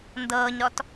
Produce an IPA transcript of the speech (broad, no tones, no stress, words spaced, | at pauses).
ndɤːɲɾɔt